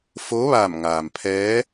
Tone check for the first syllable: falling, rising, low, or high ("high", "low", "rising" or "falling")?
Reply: rising